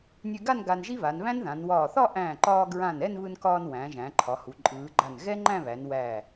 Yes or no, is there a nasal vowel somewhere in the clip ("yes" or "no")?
yes